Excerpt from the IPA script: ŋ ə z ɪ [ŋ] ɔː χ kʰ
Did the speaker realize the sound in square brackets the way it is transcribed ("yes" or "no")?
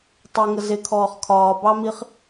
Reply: no